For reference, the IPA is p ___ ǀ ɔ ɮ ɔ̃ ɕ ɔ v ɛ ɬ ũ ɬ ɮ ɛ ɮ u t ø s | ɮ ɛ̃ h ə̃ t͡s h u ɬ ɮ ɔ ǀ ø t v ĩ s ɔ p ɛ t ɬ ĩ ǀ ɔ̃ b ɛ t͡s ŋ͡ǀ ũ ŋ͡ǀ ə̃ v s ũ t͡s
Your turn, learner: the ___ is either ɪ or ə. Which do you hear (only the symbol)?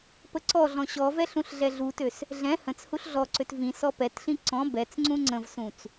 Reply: ə